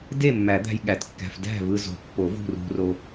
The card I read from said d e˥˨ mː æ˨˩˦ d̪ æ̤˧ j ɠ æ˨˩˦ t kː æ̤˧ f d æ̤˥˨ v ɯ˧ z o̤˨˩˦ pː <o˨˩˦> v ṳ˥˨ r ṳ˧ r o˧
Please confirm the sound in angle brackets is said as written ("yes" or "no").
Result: yes